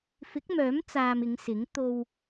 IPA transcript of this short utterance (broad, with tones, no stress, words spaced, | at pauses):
fɪ˨˥k̚mœː˨˥m t͡saː˧mɪ˨˧ŋsɪ˨˥ŋ t̪o˧w